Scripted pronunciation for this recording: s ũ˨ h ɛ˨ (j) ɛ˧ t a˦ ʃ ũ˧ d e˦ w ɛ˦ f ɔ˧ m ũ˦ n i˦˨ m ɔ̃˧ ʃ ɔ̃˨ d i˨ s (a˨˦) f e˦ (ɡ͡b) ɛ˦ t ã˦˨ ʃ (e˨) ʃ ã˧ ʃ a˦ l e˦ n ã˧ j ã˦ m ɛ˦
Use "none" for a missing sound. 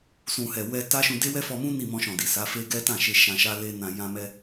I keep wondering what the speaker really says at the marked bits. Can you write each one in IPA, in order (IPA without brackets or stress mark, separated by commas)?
w, a˨˦, ɡ, e˧